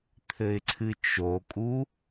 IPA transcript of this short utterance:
t̪ʰ ɘ ɪ̯ ǀʰ ɨ t͡ʃ o kʼ u

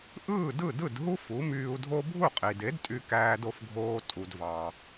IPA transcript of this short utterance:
ʔ ɯː˥˩ d ɯ˥˩ d ɯ˥˩ d ɦ u˥ f u˩˥ m yː˧ u̯ dʱ o˥ bʱ u˥˩ qʼ i˩ d e˩˥ d tʼ y˧ k æː˧ d o˧ f ɡʱ oː˧ tʼ u˩ d v ɑ˩

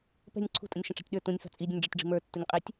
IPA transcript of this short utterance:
p ɛ̤ nʲ ǀʰ ṳ tʼ ə̃ nʲ ʃ ə̃ ʈ͡ʂ ɑ̤ tʲ ɗ ə˞ t ũ nʲ f ɑ̤ t͡sʼ i dʲ ə̃ nʲ ɖ͡ʐ ə tʲ ɖ͡ʐ i̤ m ə˞ tː u nʲ qʼ i tʲ

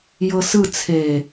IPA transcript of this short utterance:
j ɤ s ɯ t͡sʰ e

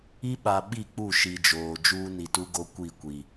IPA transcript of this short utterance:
i˦ ɓ a˨ ɓ i˦˨ k͡p u˦˨ ʃ i˨ d͡ʒ oː˨ d͡ʒ uː˦ n i˨ t u˦ ɡ o˦ kʷ i˦˨ kʷ i˨

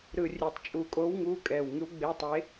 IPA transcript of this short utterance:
ɾ ɯ˨˩ rʲ e˨˩ tˤ t͡ʃʼ u˨˩ kʼ o˨˥ w ŋ u˨˥ kʼ ɛ˨˩ w ŋ ɯ˨˥ w ɡ͡b e˨˥ tˤ e˨˥

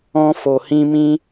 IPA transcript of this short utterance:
ɔ̃˧ f o˨ h ĩ˧ m ĩ˦

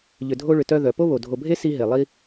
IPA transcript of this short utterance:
ʎ ʏ˨ dʱ o˦ ɭ ʏ˨ t œ˦ ð œ˩ p o˥ β o˩ dʱ o˨ bʱ e˥ s i˦ ɦ e˩ lˠ i˦

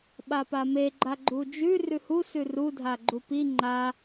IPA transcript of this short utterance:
ɓ a p a m e ɡ͡ǃ a ɡ͡ǃ u d͡ʒ ʉ r ʉ h u s ʉ r u dʱ a ɡ͡ǃ u p i ŋ͡ǃ a

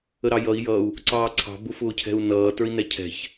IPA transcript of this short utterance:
ə ɾ ɑ j ʌ i̯ j ʌ u̯ | ǀ ɑː ǀʰ ɑ̤ b ʊ f ʊː cʰ ɛ̤ u̯ n ʌː t ə˞ i̯ n ɛ cʰ ɛ̤ ç

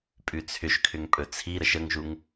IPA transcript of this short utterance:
pʼ ʉ t͡sʰ ʏ ʃ kʰ ʏ ŋ pʼ ɵ t͡sʰ i ɾ ə ʃ ə ŋ ʒ u ŋ

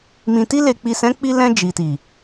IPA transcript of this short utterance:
m ĩ˨ t i˧ l e˨ k͡p i˨ s ɛ̃˨˦ k͡p i˧ l ɛ̃˧ d͡ʒ i˨ t i˨

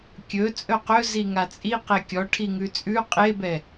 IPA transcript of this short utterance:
kʲ ɵ t͡sʼ ɵ q ɵ z i ŋ a t͡sʼ i q e kʲ ɔ ʈʰ i ŋ ʉ t͡sʼ ʉ qʼ e b ɛ

